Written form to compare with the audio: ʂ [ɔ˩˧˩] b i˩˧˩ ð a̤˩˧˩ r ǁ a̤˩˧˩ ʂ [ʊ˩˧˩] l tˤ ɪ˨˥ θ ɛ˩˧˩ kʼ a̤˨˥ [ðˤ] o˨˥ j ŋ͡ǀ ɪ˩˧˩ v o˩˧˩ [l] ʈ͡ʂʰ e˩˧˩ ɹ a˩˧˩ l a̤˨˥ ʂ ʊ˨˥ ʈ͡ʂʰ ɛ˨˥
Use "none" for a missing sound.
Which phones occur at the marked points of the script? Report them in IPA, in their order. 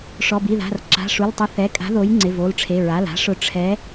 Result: ɔ˩˧˩, u˩˧˩, ð, l

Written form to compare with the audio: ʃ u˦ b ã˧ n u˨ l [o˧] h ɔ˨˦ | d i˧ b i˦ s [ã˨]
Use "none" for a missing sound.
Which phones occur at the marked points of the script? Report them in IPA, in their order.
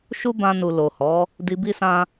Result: o˨, ã˦

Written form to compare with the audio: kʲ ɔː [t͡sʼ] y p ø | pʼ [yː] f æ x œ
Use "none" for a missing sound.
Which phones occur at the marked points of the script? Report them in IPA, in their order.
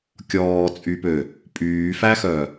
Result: t͡sʼ, yː

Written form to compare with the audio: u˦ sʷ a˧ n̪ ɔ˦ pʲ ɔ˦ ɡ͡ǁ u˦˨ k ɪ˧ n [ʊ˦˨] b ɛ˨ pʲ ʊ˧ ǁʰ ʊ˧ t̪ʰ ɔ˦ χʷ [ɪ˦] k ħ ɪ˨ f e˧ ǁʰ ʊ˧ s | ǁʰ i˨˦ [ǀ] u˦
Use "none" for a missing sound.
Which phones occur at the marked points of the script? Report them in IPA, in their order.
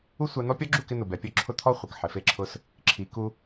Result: ʊ˨, ɪ˨, k

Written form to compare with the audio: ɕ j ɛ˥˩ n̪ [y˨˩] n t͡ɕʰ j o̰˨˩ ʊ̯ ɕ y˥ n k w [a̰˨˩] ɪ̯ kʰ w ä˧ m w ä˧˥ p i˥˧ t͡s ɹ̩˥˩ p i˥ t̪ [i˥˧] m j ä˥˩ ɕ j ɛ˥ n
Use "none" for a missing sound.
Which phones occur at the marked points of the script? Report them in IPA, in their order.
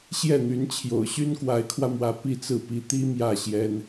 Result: y˧˥, a˧˥, i˥

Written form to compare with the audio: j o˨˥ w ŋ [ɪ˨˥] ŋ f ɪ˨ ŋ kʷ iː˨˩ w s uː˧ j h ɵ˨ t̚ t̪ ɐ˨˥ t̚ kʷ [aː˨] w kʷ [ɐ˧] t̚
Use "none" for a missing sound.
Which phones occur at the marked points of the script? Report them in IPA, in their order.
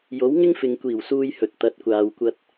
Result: ɪ˥, aː˨, ɐ˧

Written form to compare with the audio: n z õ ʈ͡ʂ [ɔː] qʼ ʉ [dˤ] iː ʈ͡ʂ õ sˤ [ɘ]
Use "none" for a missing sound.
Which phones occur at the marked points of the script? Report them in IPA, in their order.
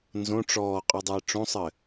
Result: ɔː, dˤ, ɘ

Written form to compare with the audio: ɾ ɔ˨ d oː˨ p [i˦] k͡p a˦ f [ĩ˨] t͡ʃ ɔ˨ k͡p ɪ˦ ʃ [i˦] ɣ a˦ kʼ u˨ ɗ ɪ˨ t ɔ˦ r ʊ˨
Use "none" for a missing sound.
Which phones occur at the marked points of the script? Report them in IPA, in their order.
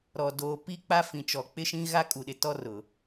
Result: i˦, ĩ˨, ĩ˦

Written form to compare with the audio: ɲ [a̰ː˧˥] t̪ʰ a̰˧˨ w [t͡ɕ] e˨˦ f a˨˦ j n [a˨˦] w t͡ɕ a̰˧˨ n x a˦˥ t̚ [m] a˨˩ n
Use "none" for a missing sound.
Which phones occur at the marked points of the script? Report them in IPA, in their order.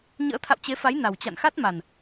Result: ə̰ː˧˥, t͡ɕ, a˨˩, m

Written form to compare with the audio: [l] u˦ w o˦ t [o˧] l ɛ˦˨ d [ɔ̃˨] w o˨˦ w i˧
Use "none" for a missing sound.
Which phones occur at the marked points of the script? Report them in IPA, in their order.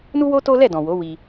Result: n, o˦, ɔ̃˨

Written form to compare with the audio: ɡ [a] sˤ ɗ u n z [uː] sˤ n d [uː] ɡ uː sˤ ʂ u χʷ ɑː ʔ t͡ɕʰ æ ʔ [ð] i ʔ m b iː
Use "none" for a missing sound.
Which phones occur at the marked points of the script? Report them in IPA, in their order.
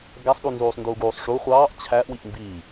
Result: æ, uː, uː, w

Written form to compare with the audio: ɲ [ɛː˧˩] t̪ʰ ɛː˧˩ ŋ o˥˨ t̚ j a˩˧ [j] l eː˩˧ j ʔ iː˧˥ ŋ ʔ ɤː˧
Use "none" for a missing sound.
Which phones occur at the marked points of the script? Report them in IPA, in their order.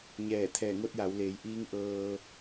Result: ɛː˧˩, w

